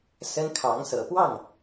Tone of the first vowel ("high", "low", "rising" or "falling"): high